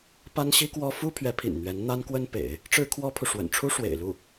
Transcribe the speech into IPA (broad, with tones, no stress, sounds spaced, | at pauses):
p a˥ n ɕ i˥ k w ɔ˥ f u˥ pʰ ɥ ɛ˧˥ pʰ ḭ˨˩ n n̪ ɥ ɛ˧˥ n n̪ a˥ n k w ə˥ n p ḛ˨˩˦ ɪ̯ | ʈ͡ʂ ɻ̩˥ kʰ w ɔ˥ pʰ u˨ ʂ w ə̰˨˩ n ʈ͡ʂʰ u˥ ʂ w ḛ˨˩ ɪ̯ l u˥˩